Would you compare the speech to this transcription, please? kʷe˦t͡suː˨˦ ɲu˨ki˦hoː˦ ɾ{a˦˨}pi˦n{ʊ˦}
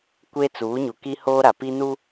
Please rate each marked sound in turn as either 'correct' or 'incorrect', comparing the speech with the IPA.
incorrect, incorrect

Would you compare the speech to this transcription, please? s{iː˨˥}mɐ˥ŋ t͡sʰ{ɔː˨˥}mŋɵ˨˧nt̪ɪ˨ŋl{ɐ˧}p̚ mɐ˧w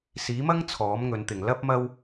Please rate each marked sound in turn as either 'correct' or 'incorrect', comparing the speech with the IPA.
correct, correct, incorrect

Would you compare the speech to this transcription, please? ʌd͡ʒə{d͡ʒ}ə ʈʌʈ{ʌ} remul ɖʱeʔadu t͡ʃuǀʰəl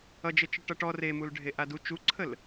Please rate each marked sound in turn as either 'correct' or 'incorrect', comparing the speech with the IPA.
incorrect, incorrect

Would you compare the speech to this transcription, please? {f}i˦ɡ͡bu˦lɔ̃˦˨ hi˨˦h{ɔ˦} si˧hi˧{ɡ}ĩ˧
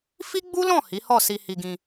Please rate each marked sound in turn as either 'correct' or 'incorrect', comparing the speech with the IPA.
correct, incorrect, correct

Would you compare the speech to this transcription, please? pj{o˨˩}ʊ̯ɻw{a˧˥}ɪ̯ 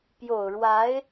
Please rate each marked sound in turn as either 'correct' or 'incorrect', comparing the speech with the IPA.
correct, correct

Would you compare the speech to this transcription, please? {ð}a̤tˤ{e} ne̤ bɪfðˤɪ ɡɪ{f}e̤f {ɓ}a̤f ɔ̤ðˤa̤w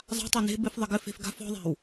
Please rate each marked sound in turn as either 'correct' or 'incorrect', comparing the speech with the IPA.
incorrect, correct, correct, incorrect

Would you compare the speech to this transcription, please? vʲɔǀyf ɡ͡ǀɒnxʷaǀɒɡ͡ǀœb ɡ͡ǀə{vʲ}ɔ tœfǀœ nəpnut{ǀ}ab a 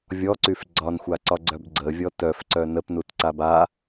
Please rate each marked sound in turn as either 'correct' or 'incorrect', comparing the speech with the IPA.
correct, correct

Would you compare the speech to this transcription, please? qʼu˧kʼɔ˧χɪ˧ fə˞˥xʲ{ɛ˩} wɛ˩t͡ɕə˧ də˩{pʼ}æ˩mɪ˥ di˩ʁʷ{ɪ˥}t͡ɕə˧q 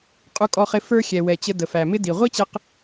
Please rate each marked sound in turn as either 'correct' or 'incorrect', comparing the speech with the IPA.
correct, incorrect, incorrect

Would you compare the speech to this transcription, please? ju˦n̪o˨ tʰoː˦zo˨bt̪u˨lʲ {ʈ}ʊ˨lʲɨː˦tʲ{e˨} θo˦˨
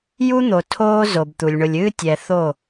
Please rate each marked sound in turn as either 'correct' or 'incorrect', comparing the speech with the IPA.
incorrect, incorrect

